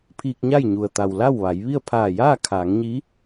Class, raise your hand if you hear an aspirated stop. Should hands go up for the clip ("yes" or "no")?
yes